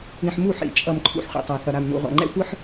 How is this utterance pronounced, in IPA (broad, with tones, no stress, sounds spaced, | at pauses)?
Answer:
ĩ˨ ħ m u˦˨ ħ ḭ˨ t͡ʃʼ ʌ˨ m ǃʰ ṵ˦ ħ χʷ ḛ˨ tˤ a˨ θ ʌ˨ ɾ a˨ m n ṵ˨ ʁʷ a̰˨ ŋ͡ǃ ɛ̰˦ tʷ ɯ˦ ħ